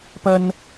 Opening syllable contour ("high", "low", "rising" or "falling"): high